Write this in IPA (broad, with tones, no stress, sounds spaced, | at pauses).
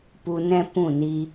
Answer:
p u˧ n ɛ̃˦ p ũ˦˨ n i˧